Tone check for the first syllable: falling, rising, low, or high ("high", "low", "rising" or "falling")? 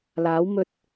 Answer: rising